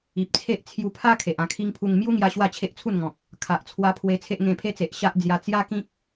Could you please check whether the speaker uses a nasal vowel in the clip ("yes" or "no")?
yes